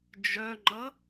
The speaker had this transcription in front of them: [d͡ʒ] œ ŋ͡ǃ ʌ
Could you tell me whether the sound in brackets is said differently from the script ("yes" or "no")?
no